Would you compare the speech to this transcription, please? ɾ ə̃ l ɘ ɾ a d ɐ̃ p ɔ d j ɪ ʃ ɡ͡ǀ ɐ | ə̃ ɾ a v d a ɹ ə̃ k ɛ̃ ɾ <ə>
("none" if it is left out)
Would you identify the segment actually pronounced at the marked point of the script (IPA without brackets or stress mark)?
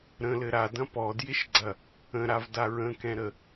ə